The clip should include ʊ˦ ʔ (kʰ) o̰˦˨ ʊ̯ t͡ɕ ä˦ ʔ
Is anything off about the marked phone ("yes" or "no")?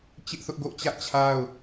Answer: yes